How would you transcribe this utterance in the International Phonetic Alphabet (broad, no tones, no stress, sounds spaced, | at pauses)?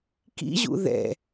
k ḭ ʑ ṵ ð ɛ̰